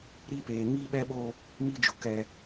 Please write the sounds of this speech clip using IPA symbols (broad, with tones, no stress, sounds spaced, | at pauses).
ɾ i˦ p eː˨ ŋ i˦ ɓ ɛ˦ ɓ o˦ | m i˦ d͡ʒ ʊ˨ k ɛ˦